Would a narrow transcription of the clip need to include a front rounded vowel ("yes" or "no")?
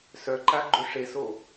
yes